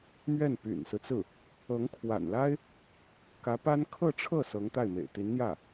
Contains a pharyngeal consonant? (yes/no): no